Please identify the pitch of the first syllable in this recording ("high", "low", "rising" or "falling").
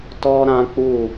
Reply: high